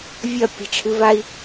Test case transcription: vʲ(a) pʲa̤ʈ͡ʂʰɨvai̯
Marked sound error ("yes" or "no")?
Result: yes